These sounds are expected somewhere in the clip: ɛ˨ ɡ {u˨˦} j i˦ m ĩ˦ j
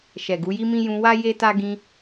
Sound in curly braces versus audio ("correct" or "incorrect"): correct